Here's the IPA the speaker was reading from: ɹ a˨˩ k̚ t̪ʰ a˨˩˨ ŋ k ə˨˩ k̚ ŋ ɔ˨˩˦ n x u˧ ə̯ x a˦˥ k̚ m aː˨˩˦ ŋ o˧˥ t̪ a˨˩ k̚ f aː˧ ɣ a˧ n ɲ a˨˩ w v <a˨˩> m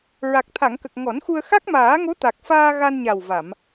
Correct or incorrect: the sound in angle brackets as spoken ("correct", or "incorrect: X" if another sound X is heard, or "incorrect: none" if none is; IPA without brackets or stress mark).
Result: incorrect: a˨˩˨